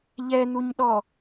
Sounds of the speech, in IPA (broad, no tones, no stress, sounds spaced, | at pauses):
ʎ ɛ n̪ u ɲ ɗ ɔ